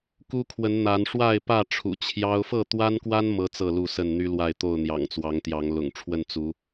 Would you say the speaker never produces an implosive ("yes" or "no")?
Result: yes